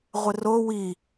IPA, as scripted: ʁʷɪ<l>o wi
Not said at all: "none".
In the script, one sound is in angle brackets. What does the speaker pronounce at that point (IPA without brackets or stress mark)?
r